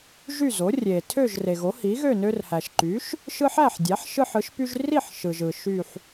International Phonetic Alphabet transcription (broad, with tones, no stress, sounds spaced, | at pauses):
ʒ y˥˨ z o˩˥ rʲ e˩ tʰ ø˥˨ ʒ r e˩ ɣ o˩˥ h i˩˥ ɣ ø˥˨ n ø˦ r h æ˩ ʃ ǃ y˩˥ ʃ | ʃ ɯ˦ ħ æ˥˨ ħ dʲ æ˩˥ ħ ʃ ɯ˦ ħ ɯ˩˥ ʃ p y˦ ʒ r i˥˨ ħ ʃ ɯ˩ ʒ ɯ˩ ʃ y˥˨ ħ